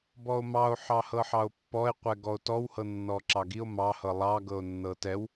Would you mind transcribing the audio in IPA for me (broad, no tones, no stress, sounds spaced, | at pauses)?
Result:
b ɔ o̯ m ɑ o̯ ħ ɑ h ɤ ħ ɑ o̯ pː ɔ e̯ qʷ ɛ ɡ ɔ o̯ t ɔ w h ɤ nː ɔ ǁ ɑ ɡ i o̯ m ɑ h ɤ lˠ ɑ ɡ ɤ o̯ nː ɤ t ɛ w